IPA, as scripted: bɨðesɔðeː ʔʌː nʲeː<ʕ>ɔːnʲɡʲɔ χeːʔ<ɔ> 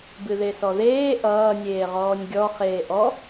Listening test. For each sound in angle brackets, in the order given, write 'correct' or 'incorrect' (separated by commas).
incorrect, correct